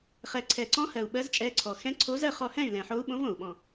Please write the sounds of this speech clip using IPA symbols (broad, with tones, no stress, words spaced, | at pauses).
χɛ˨˩ǀʰɛ˨˩ǀɔ̃˧˥hɜ˨˩u̯ ɓɜ˧˥zt͡ʃʼɛ˧˥ǀʰɔ˨˩ xɛ̃˧˥ǀʰo˧˥zɜ˥˨ χɔ˥˨ hɛ̃˥˨y̯lɛ̃˨˩ħo˧˥u̯ɓõ˧˥v õ˨˩u̯ɓɔ̃˨˩